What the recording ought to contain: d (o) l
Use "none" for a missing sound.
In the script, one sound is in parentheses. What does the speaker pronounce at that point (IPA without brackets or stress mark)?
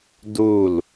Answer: u